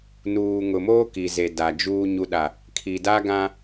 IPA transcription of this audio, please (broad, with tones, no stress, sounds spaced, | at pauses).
n uː˨ ŋ ʊ˨ m oː˦ k i˨ z e˨ d a˨ d͡ʒ uː˨ ɲ u˨ ɗ a˨ | kʰ i˨ d a˦ ɡ ã˦